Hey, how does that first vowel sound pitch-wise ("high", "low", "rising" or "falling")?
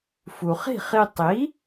low